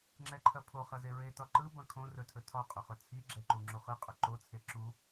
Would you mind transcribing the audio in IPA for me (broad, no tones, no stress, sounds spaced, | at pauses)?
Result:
ŋ͡ǁ ɛ ǃʰ ɐ pʰ o χ ɐ z e ɹ e t ɒ ǃ ɯ b ɐ̃ kʰ õ r ɵ tʰ ɵ tʰ ɒ qʼ ɵ χ ɵ t͡sʰ i ɡ͡ǁ ɛ ǃ u ŋ͡ǁ u χ ɯ qʼ ɵ ǃ o t͡sʰ e ǁ u